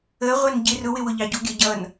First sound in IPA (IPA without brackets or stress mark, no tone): ə